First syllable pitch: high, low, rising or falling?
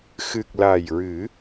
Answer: low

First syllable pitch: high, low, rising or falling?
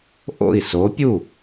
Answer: falling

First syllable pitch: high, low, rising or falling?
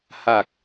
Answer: low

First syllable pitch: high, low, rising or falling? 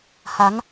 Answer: rising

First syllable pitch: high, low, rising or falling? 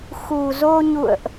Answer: low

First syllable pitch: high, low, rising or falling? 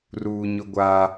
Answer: low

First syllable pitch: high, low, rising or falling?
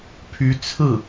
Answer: rising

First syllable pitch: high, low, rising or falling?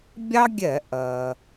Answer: high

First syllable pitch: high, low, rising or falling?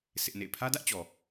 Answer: high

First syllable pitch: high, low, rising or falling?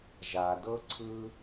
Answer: low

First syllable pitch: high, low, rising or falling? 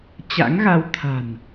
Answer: rising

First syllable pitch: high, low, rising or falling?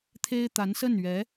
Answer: high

